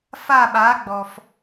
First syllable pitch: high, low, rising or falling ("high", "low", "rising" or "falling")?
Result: falling